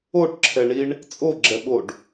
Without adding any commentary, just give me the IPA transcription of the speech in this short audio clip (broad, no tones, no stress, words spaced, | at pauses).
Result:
oʈǁʰɛɳiɳ | t͡sʼoɡ͡ǁɛɓoɖ